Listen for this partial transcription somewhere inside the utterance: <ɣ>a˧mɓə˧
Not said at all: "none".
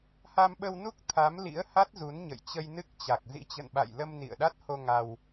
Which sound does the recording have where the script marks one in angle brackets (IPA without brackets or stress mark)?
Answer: h